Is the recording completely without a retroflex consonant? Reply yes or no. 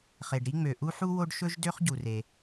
no